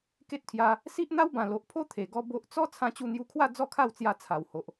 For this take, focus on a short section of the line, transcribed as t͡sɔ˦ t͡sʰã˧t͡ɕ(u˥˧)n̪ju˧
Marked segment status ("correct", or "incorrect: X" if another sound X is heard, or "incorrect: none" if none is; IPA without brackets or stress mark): incorrect: u˧